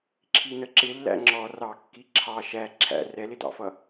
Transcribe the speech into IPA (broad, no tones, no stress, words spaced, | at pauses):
ǁʰinəǁɪlːæ̰ ŋ͡ǁɔ rɑkːi ǁʰɑ ʃæ ǁʰæ̰ rɛlɪdɑ̰fʌ